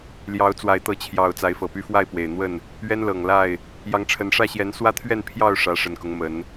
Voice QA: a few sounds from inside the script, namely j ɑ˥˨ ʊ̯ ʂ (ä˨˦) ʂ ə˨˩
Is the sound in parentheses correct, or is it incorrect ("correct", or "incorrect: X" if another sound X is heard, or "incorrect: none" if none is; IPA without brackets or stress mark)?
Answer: correct